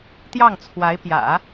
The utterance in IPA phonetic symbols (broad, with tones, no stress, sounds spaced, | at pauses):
t̪ j ɑ˥˩ ŋ t͡sʰ w a˧˥ ɪ̯ p j ä̰˨˩˦